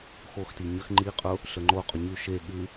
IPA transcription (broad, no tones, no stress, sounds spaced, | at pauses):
x o x t i ɲ ə x ŋ͡ǃ i qʼ ʊ | ɬ ə ŋ͡ǃ o qʼ ʊ ɲ ʉ ʃ e ɠ ʉ